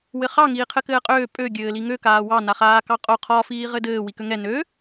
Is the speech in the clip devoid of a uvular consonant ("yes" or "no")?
no